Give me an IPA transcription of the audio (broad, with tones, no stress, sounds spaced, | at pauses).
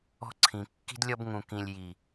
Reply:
ɔ̤˧ ǀʰ ĩ˨ kː i̤˧ d lʲ ɔ˧ b ŋ ũ˨ k ĩ˨ lʲ j i˨